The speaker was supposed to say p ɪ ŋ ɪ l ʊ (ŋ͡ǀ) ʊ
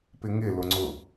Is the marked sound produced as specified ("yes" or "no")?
yes